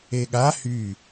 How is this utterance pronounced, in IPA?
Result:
eɠa hy

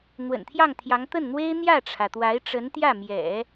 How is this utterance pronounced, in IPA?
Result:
n̪wə̰˨˩nt̪ʰjɑ˥˩ŋt̪ʰjɑ˧˥ŋ t̪ə˥˩nn̪we˥ɪ̯ n̪jä˥˩ʈ͡ʂʰä˩t̪wa˧˥ɪ̯ʈ͡ʂə˧˥n t̪jä˥˩mjɛ̰˨˩˦

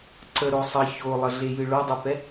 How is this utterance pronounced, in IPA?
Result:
ǀəɾo sˤə çolˠəɮejɨ ɭodˤɛpɛ

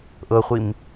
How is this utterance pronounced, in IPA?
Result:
ʔɤχʷim

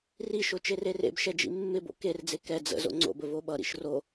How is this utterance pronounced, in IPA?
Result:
riʃo t͡ʃererḛbʃɛ d͡ʒḭmːɪbo̰ kerd͡ze kɛ d͡zə̰ zo̰ŋ͡ǀo̰bə voɓʌɾḭʃ ro

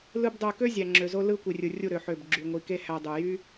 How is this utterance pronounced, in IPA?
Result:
lɯ˦bdˤø˧ kø˦zʲæ˨ŋ͡ǁø˨zo˧ lɯ˦ kʷi˨rʲɯ˨rʲu˦˨ ɾø˨ ħø˦˨bɡ͡ǁy˧ŋʷi˧ ke˦hæ˧ dˤu˨ jy˦

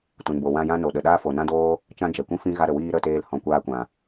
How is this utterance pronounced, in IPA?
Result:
tũ˨nbo˨wã˧ jã˦ no˨ɗə˨ɗaː˦fo˨ nã˦doː˦ | t͡ʃã˦ d͡ʒɛ˨kʷĩ˦fĩ˦ ɣa˧ɾə˨wiː˧ ɾə˦˨teː˧l hɔ̃˨kʷaː˧kʷã˨

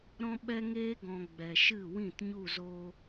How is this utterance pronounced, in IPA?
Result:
ɾɔ̃˦ɓɛ˦ŋeː˦ɡɔ̃˨ ɡ͡bɛ˨ʃɨ˦˨wĩ˦˨t ɲu˦˨zoː˧

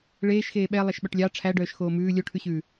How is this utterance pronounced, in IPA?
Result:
ɭeːʃxeː ɓɛ lˠɛʃɓœʈlʲɑ ʈ͡ʂʰæɖœːʃ xoːmʉː lʲoʈʰʉɕʉː

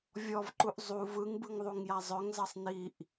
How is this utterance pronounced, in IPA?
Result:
vʲɔvǃuʔ zˤu vɯŋbɯŋðˤuŋja zˤœŋzʌsˤ niʔ

